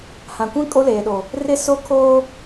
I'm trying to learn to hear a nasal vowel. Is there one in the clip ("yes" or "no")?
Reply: yes